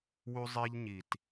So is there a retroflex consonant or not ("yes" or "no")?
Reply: no